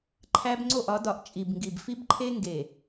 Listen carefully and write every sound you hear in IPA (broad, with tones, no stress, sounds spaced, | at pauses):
ǃʰ æ˦ b ŋ͡ǀ o˦˨ ʔ ɒ˨˦ d ɒ˨ ʔ t͡ʃʼ i˨ b ŋ ɡ i˨ b f i˦ b ǃʰ e˦ ŋ ɡ e˨